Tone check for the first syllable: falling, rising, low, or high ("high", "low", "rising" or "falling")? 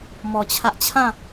low